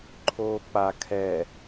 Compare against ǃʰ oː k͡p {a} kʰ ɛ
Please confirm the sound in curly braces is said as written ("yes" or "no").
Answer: yes